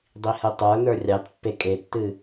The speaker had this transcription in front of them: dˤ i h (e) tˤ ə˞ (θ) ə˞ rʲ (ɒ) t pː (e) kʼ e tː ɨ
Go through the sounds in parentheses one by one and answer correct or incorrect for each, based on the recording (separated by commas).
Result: incorrect, incorrect, incorrect, correct